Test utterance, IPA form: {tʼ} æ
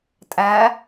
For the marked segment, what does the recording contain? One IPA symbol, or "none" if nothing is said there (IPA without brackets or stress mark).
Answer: tʼ